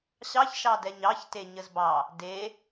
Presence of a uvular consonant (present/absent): absent